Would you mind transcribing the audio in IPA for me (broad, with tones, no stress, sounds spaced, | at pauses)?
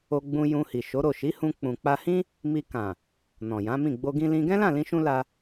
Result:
o˧ ɡ͡b ũ˧ j ũ˧ h i˨ ʃ o˨˦ ɾ o˦˨ ʃ i˨˦ h ũ˧ k͡p ũ˨ k͡p a˧ h ĩ˦ | m i˧ k ã˨ | n ɔ̃˨ j ã˨˦ m ĩ˦˨ ɡ͡b o˧ ɡ ĩ˧ l ĩ˧ ɡ ɛ̃˦ l ã˦˨ l ĩ˧ ʃ ũ˧ l a˧